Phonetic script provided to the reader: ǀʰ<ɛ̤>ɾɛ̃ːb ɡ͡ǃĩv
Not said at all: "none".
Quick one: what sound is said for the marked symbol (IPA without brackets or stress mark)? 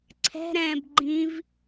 ɛ̤